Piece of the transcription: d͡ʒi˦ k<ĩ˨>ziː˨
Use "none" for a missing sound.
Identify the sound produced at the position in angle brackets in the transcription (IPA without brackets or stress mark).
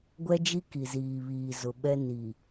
i˨